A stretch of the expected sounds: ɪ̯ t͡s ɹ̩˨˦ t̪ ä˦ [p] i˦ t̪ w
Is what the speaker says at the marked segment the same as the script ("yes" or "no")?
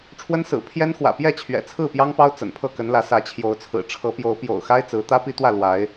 yes